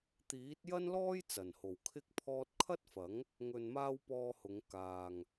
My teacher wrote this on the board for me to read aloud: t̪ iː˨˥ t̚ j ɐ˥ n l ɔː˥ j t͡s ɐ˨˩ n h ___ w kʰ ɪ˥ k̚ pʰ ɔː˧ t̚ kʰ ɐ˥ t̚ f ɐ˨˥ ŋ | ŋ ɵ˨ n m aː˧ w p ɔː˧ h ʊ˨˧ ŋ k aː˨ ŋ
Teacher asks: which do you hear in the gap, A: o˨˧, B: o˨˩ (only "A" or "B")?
B